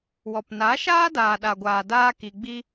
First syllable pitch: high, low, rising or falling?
low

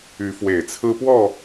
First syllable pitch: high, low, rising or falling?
rising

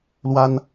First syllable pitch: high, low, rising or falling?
high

